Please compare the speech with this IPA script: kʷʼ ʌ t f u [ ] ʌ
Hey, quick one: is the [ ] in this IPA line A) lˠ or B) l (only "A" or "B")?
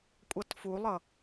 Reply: A